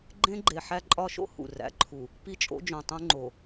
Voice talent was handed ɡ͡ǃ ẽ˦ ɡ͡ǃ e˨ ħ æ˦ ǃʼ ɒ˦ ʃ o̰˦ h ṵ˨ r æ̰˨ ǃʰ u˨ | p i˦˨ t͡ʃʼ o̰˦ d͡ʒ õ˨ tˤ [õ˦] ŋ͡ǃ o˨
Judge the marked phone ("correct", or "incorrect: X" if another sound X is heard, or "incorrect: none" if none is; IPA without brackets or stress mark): incorrect: ũ˦